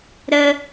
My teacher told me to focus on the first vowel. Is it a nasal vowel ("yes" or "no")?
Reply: no